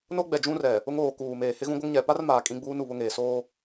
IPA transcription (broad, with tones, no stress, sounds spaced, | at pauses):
n o˦ ɡ͡b ɛ˨ d͡ʒ ũ˦ r ɛ˨ | ʊ˦ ŋ oː˨ k uː˨ m eː˨ h ɪ˦ ɣ ũ˦ ɡʷ ɪ˦ ŋ ɲ ɛ˨ p a˦ r m aː˨ kʼ ĩ˦ ɡ͡b uː˦ n u˨ β ʊ˦ ŋ eː˨ s oː˦